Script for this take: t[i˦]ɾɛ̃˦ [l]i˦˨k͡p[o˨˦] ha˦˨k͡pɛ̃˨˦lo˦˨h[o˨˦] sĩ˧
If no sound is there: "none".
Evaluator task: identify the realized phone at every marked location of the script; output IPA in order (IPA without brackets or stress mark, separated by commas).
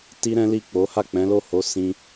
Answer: i˦, l, o˨˦, o˨˦